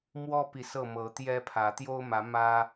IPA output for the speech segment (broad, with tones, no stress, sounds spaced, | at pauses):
m w ɔ˦ p i˨ s ɤ˥˨ m ɤ˨˦ t̪ j ɛ˦ pʰ ä˨˦ t̪ j o˦ ʊ̯ m ä˨˦ m ä˦